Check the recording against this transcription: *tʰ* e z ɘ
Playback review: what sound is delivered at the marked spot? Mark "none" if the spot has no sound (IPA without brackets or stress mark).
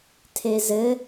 tʰ